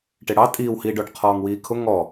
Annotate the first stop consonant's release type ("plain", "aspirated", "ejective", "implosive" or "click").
plain